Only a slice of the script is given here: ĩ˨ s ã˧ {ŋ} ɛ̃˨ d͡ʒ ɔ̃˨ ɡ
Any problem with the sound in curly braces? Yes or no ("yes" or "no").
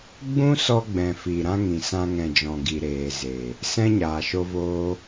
no